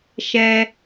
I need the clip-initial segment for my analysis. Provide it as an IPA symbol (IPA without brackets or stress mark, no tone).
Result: ʃ